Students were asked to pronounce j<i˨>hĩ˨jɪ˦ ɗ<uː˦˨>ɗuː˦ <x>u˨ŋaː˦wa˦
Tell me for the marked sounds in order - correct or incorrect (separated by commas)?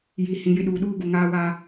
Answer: correct, incorrect, incorrect